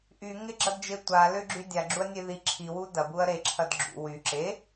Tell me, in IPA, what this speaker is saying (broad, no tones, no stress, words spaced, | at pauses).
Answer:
ʔyŋɪɡ͡ǁɐdd͡ʒe tʷalʏɡ͡ǁy dʲaɡ͡ǁuɐ̯nʲe ði ǁʰiwu dɐbuɐ̯ ɾeǁʰɐd ɡ͡ǁṵ wy ǁe